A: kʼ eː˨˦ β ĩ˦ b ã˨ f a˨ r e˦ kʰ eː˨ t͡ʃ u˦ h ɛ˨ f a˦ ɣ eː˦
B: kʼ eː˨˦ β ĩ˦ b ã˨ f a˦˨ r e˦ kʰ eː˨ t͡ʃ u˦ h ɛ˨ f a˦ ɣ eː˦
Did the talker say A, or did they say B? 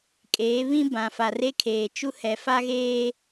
A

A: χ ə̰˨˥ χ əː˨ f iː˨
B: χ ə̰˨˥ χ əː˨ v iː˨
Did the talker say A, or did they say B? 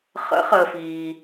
A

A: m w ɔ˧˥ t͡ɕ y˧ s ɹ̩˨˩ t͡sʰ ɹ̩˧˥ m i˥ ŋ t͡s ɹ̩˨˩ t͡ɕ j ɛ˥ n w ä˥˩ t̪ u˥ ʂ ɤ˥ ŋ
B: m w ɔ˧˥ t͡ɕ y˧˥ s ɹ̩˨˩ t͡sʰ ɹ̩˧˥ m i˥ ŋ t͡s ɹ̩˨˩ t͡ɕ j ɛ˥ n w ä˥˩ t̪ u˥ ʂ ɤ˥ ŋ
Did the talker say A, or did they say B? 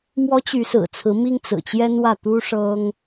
B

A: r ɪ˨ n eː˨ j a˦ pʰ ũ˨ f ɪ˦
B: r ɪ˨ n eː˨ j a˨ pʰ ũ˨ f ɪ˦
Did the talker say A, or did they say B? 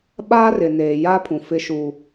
A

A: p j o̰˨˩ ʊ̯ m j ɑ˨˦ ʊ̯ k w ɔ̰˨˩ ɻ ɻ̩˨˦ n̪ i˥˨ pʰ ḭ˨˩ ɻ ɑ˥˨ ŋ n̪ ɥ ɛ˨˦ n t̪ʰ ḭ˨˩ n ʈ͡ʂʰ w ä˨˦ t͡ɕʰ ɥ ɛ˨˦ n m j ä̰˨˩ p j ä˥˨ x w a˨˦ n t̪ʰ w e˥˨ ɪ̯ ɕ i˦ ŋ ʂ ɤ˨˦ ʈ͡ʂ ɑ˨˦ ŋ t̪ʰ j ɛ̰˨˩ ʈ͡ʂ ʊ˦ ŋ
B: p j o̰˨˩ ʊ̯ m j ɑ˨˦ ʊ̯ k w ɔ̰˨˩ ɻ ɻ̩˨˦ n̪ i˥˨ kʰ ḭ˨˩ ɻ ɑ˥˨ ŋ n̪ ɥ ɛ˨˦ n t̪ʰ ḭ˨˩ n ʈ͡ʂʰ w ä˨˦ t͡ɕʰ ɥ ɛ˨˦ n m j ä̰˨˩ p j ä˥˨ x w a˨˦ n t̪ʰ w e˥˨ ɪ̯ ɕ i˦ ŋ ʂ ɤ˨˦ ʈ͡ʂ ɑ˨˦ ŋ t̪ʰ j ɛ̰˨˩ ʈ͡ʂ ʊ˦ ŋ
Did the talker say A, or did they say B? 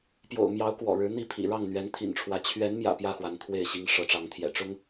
A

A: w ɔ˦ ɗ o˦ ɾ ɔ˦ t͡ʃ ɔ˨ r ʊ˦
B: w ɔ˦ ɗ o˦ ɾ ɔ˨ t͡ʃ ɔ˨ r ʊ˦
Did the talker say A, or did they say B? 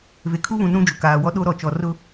B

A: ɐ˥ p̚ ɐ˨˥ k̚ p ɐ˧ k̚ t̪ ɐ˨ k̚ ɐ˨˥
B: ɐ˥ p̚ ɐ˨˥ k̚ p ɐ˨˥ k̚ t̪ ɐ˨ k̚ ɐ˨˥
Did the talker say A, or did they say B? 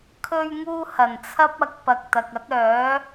A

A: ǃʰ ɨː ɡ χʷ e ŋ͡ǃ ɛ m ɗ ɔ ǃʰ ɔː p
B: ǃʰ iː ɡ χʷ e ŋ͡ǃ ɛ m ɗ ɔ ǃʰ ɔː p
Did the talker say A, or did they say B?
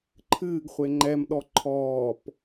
A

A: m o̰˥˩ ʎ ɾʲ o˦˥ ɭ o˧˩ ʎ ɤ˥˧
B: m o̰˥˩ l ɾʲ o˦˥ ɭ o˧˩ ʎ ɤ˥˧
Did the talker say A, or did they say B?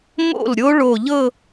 B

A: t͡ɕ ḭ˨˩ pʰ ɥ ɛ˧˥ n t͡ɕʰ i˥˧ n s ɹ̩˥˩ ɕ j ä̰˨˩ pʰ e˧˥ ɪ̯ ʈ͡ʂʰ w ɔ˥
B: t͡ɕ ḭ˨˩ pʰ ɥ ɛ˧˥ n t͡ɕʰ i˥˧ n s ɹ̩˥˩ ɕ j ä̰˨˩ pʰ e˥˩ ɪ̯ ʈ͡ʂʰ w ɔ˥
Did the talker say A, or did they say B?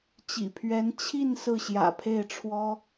B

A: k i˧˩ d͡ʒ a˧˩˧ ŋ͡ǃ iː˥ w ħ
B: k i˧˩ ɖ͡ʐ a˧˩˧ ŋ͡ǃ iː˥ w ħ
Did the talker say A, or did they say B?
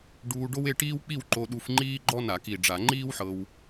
B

